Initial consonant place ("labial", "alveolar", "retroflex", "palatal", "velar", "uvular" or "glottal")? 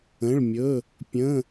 retroflex